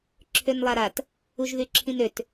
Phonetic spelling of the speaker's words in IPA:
ǁʰønlˠaɾat | uʒðyǁʰĩnøt

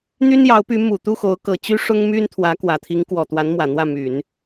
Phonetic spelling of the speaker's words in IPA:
n̪y˥n jɑ˧˥ʊ̯py˧˥ mu˨˩ t̪u˥˩xo˧˥ʊ̯kɤ˨˩ t͡ɕy˥ʂʊ˥ŋmy˥n t̪ʰwä˧˥kwä˨˩ t̪ʰi˧˥ŋkwɔ˨˩t̪wa˧˥n mwä˨˩n̪wä˥˩my˨˩˦n

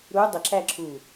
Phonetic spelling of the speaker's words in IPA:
ɾu dˤəǁæ ǁu

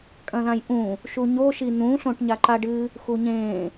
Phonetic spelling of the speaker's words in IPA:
kʼɐ̃ðãjʔũ | ʃuɲo ʃin̪ũ ɬõʈɲaǃaɖɨ | xuɲẽ

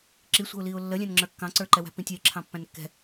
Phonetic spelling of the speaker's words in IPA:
ǁisʷə̤ʊ̯liʊ̯ lːəlʲæ̃nŋ͡ǁə˞ kːɑ̃ǀə˞ǃɛ wæ̤pĩtʲɛɪ̯ǁʰɑ̃ pːæ̃nkːɛ̤

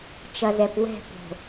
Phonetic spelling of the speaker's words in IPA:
t͡ʃɐ˨zɛ˨pwɛ̤˦˨po̤˨

